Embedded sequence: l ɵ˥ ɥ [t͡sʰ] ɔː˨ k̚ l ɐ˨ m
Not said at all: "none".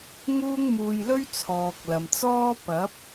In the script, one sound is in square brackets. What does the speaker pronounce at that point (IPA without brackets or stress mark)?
t͡sʰ